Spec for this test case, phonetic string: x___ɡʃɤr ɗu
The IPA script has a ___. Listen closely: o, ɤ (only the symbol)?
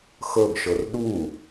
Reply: ɤ